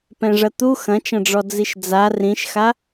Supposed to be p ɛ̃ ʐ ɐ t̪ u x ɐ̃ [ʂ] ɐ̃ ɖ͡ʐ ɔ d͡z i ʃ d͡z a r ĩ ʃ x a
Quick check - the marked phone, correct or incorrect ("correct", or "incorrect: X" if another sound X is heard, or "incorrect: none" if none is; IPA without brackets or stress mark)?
incorrect: t͡ʃ